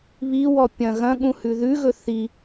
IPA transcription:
β i w ɔ pʲ ɐ̃ ɣ ɐ̃ ɠ ũ h ʉ ð ʉ ɣ ɵ θ i

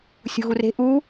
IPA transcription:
sʲ ṳ ɣ u r e̤ ʔ u

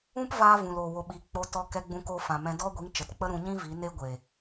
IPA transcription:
ũ˦ p v aː˧ v ũ˨ l o˨ w o˨ ɓ i˨ k͡p o˧ t ɔ˧ k ɛ˧ ɡ͡b ũ˧ k o˧ f ã˨ m ɛ̃˧ d ɔ˦ ɡʷ i˨˦ ŋ t͡ʃ ə˨ t k͡p ə˦ ɾ ũ˧ ɲ ĩ˦ v i˨˦ n e˦ ɡʷ e˨

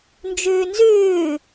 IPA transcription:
n d͡ʒ ʉː n z ʉː

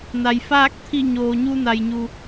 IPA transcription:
n a˩ j f aː˥˨ k̚ t̪ʰ i˧˩ ɲ oː˩ ɲ u˧ n a˩ j ɲ u˩

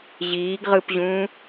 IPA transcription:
ʑ iː ɡ ʁ ɯ p ʑ ũː

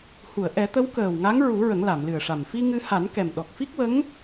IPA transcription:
h u˨˩˨ ə̯ ʔ ɛ˨˩˦ t̪ ə˧˥ w k əː˨˩ w ŋ a˧˥ ŋ ɹ u˨˩˦ ɹ ə˨˩˦ ŋ l a˨˩˨ m l ɨ˨˩ ə̯ ʂ a˨˩ m f i˧ ŋ ɨ˧ h a˨˩˦ n k ɛ˨˩ m ɗ ɔ˨˩ k̚ f i˦˥ k̚ w ə˧˥ ŋ

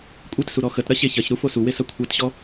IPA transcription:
kʷʼ e t s u ɾ ɔ x ə t ɾ ɐ ɕ e ç ɐ ç ɾ u f o s u w e s ɐ kʷʰ a t ɕ ɔ

